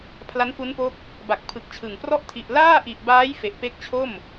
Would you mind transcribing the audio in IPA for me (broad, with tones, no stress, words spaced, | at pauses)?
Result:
pʰla˦˥nfu˦˥npo˦˥k̚ | ba˨˩k̚pʰɯ˨˩k̚t͡ɕʰɯ˨˩ŋprɔ˥˩ʔ tʰi˨˩ʔlaː˥˩ʔi˨˩ʔbaː˦˥j fe˨˩ʔpe˦˥k̚t͡ɕʰo˥˩m